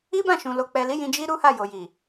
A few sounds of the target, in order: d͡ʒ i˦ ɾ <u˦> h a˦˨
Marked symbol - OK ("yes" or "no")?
yes